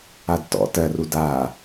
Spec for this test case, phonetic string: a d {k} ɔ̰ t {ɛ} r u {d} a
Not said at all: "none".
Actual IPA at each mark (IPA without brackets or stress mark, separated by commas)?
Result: t, ɜ, d